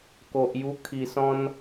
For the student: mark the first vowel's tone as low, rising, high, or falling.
low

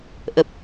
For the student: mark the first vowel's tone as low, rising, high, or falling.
low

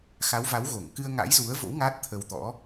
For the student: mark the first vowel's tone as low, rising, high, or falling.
rising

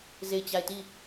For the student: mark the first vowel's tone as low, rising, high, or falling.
falling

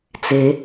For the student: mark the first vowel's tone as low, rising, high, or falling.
rising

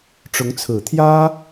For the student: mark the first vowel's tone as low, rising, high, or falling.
rising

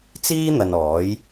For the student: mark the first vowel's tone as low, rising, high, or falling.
high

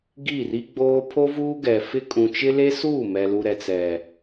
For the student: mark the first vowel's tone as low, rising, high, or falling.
falling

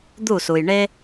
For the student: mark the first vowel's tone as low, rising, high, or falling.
falling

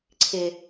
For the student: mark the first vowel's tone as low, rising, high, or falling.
low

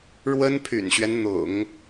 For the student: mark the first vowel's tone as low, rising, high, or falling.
high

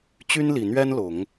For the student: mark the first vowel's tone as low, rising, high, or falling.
high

